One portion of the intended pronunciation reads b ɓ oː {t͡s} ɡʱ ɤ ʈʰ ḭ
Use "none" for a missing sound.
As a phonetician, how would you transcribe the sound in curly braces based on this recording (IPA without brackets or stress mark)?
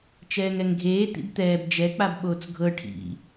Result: t͡s